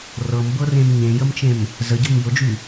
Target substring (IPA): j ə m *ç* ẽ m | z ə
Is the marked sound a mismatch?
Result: yes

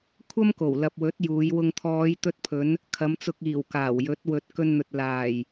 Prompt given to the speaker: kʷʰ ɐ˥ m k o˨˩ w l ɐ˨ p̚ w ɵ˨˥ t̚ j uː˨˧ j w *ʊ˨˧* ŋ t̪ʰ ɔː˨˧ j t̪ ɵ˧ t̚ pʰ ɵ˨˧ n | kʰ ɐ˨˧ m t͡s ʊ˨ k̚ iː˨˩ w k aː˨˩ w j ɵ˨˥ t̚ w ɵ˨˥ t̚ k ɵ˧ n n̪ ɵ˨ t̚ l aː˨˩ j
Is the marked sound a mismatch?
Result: yes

